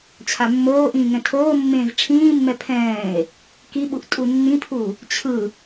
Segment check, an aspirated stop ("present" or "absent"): present